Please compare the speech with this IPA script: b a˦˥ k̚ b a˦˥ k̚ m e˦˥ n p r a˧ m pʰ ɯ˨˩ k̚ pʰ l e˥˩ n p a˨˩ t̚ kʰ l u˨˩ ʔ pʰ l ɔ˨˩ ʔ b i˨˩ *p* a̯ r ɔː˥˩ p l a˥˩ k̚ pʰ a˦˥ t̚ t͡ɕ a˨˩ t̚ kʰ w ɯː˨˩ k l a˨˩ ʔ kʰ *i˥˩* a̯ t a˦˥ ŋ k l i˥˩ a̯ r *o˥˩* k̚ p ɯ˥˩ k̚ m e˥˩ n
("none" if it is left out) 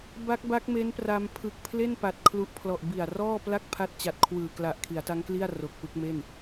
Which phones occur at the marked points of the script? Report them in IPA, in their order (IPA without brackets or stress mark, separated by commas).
none, i˩˦, o˨˩